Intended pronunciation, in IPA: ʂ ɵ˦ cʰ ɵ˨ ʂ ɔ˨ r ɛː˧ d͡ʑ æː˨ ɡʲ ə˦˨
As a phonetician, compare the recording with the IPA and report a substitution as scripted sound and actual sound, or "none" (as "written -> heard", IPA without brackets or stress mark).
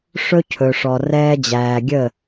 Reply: none